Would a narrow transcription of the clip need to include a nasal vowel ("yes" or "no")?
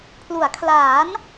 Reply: no